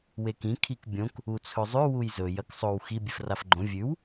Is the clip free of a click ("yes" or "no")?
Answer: no